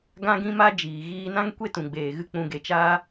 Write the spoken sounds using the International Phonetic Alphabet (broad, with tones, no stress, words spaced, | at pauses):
ɡã˦ɡĩ˦ma˦ d͡ʒiː˨ ɣiː˧nã˦ŋ kʷe˦tũ˨ɡ͡beː˨ɣɨ˧ k͡pũ˨ɡe˨t͡ʃaː˧